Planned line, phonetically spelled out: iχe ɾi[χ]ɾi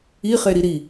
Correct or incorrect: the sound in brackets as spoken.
incorrect: none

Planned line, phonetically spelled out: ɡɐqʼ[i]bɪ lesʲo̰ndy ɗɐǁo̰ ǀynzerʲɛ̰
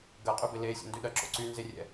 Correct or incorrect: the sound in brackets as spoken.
incorrect: y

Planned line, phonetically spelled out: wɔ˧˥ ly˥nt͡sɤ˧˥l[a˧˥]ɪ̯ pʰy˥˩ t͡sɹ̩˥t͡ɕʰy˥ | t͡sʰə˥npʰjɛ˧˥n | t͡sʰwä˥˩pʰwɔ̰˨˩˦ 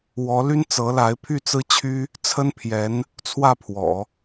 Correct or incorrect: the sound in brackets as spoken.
correct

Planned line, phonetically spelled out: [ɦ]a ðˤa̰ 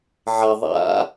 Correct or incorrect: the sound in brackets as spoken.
incorrect: ʕ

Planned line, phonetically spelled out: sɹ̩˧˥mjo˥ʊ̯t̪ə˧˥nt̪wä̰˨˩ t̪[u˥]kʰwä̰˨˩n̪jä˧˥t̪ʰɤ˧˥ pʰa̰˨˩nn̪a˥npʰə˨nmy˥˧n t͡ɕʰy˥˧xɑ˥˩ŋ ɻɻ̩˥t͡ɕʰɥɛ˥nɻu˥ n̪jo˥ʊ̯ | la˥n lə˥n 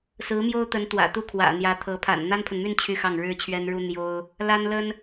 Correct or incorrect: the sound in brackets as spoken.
correct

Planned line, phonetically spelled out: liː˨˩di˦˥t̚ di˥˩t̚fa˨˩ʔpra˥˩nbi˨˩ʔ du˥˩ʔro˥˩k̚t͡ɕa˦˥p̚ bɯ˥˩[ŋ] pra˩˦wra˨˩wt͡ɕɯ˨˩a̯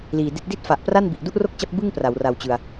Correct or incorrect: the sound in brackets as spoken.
correct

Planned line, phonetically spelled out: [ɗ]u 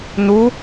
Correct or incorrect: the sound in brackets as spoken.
incorrect: n̪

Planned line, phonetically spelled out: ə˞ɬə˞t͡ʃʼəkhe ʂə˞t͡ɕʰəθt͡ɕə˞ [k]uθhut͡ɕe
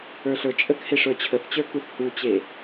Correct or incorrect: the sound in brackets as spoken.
correct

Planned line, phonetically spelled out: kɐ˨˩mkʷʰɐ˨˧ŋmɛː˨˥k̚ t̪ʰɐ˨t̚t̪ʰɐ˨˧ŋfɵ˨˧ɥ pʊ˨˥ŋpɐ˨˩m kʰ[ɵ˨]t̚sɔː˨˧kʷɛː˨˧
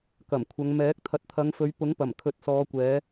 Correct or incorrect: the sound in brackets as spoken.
incorrect: ɵ˨˥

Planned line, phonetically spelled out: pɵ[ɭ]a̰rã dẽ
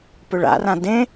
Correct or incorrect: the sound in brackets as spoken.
correct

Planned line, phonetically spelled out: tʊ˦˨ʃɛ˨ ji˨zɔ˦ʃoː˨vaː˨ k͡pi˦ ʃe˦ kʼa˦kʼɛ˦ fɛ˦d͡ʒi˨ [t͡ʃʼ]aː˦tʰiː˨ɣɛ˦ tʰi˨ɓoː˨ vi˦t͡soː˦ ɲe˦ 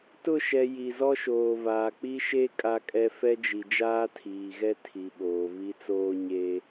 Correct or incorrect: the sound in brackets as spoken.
incorrect: d͡ʒ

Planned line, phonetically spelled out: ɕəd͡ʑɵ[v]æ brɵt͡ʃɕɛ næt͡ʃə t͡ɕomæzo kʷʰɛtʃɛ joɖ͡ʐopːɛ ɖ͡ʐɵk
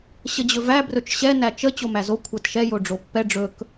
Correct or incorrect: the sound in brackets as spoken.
correct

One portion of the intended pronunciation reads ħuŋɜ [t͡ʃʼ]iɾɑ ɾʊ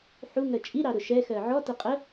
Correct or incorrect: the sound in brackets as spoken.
correct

